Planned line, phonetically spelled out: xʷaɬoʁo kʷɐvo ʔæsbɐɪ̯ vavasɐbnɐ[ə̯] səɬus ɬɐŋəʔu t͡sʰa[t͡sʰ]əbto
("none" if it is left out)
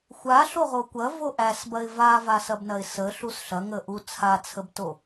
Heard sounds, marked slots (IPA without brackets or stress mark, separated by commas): ɪ̯, t͡sʰ